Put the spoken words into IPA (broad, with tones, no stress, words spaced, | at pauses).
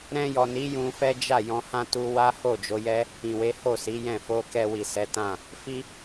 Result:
ɾɛ̃˧jɔ˨ni˨˦ jũ˧fɛ˦ d͡ʒa˦˨jɔ̃˧hã˦ tu˧ wa˦ho˦˨ d͡ʒo˨˦jɛ˦ | ĩ˨we˨˦ ho˦˨si˨˦jɛ̃˦˨ fo˧kɛ˧ wi˨ sɛ˨˦tã˦˨ | fi˦